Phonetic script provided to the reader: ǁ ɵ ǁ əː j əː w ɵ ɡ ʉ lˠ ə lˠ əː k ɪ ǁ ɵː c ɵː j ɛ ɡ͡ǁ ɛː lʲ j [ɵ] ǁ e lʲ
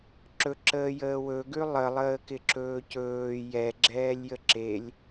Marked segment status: incorrect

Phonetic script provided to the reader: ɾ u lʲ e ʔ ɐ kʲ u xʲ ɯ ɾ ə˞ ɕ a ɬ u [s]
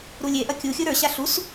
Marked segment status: correct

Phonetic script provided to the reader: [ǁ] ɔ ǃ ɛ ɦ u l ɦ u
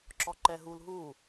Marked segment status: correct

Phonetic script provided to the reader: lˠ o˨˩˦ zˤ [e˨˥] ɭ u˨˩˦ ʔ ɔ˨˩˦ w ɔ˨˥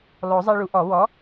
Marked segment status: incorrect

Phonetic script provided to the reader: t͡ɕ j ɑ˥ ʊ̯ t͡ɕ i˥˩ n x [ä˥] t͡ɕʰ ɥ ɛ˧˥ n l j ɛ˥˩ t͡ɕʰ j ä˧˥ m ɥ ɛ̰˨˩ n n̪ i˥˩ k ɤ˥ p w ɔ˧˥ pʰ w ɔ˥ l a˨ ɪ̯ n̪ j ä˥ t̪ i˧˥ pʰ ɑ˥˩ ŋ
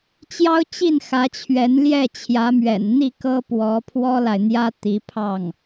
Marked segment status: incorrect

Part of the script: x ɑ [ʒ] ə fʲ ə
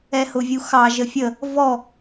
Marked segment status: correct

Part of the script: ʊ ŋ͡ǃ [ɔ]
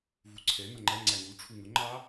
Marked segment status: incorrect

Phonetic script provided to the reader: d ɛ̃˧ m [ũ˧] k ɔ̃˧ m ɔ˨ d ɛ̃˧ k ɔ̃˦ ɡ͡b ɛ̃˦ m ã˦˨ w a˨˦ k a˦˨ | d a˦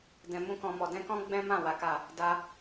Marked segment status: incorrect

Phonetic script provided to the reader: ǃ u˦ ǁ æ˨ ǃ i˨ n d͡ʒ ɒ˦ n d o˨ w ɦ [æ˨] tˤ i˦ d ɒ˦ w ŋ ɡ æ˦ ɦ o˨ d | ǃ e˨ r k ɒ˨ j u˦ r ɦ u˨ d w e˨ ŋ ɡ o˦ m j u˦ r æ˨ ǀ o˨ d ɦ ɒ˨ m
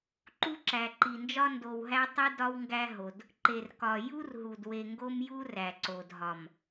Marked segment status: incorrect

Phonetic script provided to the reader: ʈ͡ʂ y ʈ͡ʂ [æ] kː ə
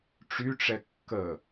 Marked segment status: incorrect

